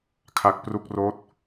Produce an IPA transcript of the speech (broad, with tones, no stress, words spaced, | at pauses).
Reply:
kʰa˦˥k̚pru˥˩k̚roː˥˩t̚